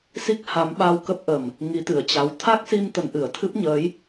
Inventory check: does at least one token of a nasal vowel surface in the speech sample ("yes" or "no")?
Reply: no